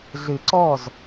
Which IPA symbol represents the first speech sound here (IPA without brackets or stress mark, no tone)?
ɮ